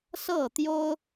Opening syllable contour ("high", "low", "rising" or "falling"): falling